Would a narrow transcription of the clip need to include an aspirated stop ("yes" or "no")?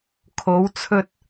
yes